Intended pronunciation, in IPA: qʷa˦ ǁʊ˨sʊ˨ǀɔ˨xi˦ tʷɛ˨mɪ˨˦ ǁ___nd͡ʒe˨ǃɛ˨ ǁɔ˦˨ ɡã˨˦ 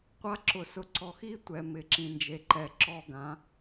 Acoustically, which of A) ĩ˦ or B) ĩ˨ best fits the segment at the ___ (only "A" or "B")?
B